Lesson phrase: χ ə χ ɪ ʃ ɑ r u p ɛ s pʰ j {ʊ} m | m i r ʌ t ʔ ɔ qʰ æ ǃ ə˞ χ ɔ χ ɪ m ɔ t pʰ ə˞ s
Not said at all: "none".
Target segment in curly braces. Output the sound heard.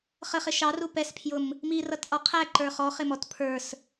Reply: ʊ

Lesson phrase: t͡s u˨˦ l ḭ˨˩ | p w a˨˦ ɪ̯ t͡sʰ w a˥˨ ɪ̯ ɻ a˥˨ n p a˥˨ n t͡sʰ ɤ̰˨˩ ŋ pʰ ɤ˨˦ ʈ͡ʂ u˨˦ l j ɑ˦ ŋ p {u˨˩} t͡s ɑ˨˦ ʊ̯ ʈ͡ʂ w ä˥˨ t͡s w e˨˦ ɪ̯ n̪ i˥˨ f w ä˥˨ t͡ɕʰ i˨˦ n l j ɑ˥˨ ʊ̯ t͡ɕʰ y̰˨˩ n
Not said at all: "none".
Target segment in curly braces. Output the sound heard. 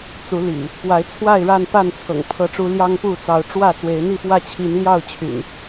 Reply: u˥˨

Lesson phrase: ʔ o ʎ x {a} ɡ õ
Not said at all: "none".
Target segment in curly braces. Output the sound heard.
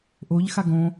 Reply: a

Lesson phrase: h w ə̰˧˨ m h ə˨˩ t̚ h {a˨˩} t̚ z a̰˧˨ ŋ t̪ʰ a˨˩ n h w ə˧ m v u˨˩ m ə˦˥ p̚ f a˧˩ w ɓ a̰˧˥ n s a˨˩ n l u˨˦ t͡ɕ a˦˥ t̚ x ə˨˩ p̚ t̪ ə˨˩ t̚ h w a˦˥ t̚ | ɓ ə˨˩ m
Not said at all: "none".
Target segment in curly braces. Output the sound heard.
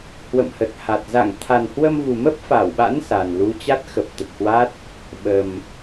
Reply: a˨˩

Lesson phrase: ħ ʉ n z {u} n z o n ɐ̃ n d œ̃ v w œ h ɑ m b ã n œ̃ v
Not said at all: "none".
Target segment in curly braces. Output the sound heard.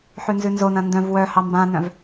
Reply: ʉ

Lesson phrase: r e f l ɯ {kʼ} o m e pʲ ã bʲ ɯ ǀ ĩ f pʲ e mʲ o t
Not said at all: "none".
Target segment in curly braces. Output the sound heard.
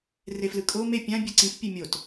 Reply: kʼ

